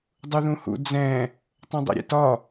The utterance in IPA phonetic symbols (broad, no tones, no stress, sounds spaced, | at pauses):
dˤ u ð ũ h ṵ d͡z ɛ̃ | tˤ ũ dˤ ḛ ɾʲ ḛ t ɒ